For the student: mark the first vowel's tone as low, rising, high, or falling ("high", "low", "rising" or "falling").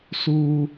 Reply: high